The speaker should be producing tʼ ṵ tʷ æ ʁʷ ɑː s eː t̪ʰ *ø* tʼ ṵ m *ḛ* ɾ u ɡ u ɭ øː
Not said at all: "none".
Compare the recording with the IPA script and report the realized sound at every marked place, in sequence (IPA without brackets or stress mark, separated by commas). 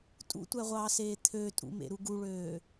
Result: ø, ḛ